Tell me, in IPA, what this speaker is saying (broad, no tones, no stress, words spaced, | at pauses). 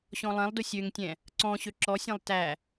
ɕɔ̃lˠɛ̃lˠdʊ sʲøŋtʲɛ̃ | ǀɔ̃ɕø ǁɔsʲæ̃lˠ tæ